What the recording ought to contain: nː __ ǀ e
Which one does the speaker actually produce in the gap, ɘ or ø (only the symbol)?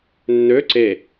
ø